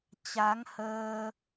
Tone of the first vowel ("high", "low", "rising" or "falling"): rising